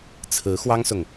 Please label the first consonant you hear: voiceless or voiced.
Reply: voiceless